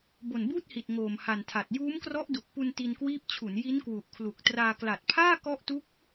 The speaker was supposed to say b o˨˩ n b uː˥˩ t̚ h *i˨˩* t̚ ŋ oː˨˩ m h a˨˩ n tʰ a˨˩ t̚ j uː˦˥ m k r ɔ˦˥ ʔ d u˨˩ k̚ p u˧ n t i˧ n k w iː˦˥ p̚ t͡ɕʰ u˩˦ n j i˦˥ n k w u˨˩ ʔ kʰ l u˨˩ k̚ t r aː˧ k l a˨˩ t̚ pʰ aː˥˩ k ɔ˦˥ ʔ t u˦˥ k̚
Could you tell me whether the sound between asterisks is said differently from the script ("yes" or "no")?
no